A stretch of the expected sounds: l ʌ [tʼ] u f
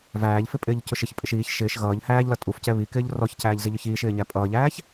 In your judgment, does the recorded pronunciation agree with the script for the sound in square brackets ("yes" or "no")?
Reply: yes